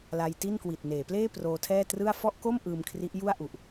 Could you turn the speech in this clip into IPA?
la˧jti˥˩nkwi˨˩t̚ neː˩˦pleː˥˩ proː˧tʰɛː˥˩ trɯ˥˩a̯ fɔ˥˩ʔko˥˩m ʔɯː˧mkʰri˦˥ʔ ju˥˩a̯ʔu˨˩ʔ

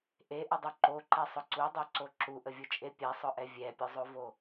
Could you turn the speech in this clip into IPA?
ʔeʔədˤu ǃoǃɛsˤʊ ǀudˤoǀo ǁuʔəvʲut͡ʃʼe pʲɛsˤʊʔɛ vʲɛpʲʊzˤovo

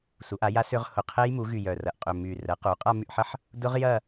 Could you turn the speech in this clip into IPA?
su˩˥ʔa˩˥ja˦˥ sʏ˦˥ʁ hʊ˧˩qʰe˦˥jmu˩˥ɣy˧˩ jœ˧˩rɐ˧˩ʔ qʼʏ˧˩my˧˩ rə˩˥ qu˩˥ qʼa˥˧my˥˧ʔħə˦˥ħ | dʊ˦˥ʁ jɐ˥˧

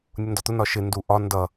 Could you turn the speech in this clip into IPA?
nʲʊndɒt̪ʊ nɒʃɪ nduʔɒ ndʌ

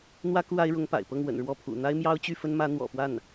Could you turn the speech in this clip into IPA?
n̪wä˥ku˥˩ a˥ɪ̯ɻʊ˧˥ŋpa̰˨˩ɪ̯pɤ˥˩ŋ wə̰˨˩nɻwɔ˥˩pʰṵ˨˩ n̪a˥ɪ̯mjɑ˥ʊ̯t͡ɕy˥˩fə˥n mä˧˥ n̪wɔ̰˨˩fwa˥˩n

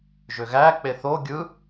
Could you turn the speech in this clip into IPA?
ʒøɣæ k͡peθo ɡʲɯ

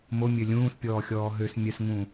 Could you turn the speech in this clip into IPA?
momʲø lʲũːspʲɔːxʲɔː ɦøs mʲɛsŋũ

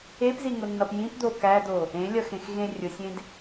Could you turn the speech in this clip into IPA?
epziŋʊnːʌp jĩpd̪o kædo | ẽlʲʌxẽxɣẽ rʲʊsʲẽd

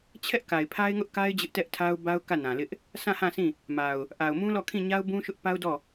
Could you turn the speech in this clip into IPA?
t͡ɕʰɛ˦ʔ ka˨ɪ̯pʰa˦ɪ̯ŋʊ˦ʔka˦ɪ̯ d͡ʑɪ˦ʔtɛ˦ʔtʰa˦ʊ̯ ba˦ʊ̯kä˦˨nã˨lɪ˦ʔ | sʰã˦˨hã˦˨sʰĩ˦˨ | ma˨ʊ̯ | ʔa˨ʊ̯mũ˦lɔ˦˨ kʰĩ˦˨ɲa˦ʊ̯bũ˦ʃʊ˦ʔ pa˦ʊ̯dɔ˦˨

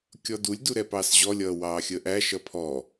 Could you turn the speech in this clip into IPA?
kʲɔdulʲ duɾɛpɑːsʑɔ lʲʌːwɑːxʲəːʔæ ʃʌpʰɔ

